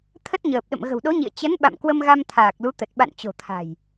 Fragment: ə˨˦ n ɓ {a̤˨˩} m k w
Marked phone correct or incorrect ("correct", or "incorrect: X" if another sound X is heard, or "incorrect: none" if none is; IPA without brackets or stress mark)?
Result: incorrect: a̰˧˨